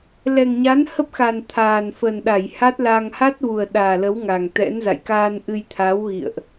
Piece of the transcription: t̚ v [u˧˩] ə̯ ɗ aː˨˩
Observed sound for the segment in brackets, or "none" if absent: u˨˩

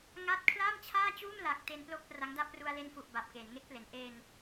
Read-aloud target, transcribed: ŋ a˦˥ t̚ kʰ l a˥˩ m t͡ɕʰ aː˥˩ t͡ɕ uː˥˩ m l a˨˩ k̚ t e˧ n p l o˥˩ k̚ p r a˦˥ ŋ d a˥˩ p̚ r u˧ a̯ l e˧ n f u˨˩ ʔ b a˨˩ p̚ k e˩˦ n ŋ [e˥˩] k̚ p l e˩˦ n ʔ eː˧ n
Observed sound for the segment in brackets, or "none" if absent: e˦˥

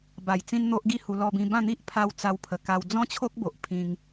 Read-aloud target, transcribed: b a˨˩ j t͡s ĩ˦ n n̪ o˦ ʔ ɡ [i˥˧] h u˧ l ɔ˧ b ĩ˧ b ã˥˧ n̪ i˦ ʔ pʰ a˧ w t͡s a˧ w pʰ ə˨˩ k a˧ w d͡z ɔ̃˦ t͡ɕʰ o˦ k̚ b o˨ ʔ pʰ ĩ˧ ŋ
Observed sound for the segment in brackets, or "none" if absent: i˥˧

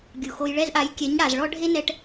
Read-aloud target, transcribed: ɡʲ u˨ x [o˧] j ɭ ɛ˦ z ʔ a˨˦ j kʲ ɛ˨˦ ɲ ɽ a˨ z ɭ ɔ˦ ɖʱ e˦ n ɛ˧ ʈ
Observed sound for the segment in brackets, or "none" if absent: o˧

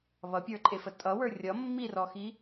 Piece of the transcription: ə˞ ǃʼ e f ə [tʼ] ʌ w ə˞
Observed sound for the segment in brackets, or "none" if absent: tʼ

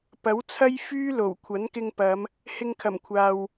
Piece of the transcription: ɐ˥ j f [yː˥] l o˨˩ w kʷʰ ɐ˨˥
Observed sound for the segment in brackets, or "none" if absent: yː˥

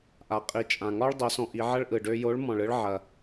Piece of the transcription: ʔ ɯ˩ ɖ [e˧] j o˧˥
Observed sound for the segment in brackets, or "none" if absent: ø˧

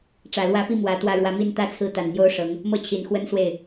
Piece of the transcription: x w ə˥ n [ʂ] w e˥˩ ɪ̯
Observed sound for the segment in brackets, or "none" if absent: s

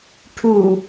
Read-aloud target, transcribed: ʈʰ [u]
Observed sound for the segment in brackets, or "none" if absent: u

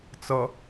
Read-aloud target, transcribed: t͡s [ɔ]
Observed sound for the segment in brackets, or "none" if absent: ʌ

